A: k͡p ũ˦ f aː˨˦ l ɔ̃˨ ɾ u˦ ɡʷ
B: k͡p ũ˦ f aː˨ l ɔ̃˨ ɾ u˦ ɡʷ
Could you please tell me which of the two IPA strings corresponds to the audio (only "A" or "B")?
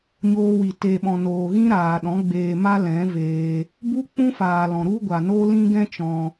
B